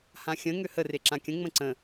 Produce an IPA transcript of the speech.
h ã xʲ ə̃ ŋ ø h ə r e ǁ ã kʲ ə̃ ŋ͡m ə̃ ǀ ə̃

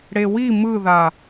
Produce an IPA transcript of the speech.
ɽ e w i m ɯ ð a

